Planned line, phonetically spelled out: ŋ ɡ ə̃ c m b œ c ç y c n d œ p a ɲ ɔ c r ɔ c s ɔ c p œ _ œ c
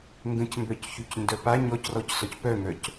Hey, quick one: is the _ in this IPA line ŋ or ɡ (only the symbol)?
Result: ŋ